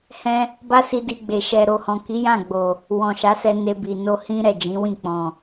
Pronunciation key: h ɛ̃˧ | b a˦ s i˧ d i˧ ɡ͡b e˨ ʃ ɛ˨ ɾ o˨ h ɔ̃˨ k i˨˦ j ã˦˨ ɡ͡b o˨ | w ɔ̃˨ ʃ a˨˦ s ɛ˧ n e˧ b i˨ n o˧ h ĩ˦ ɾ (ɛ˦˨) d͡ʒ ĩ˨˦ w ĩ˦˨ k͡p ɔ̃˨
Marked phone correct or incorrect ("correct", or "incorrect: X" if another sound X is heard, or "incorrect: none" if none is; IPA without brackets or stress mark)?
correct